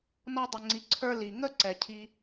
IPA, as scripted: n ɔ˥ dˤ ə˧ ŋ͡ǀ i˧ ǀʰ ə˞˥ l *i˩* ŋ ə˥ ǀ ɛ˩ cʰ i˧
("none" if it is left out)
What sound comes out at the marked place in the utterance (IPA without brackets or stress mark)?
i˩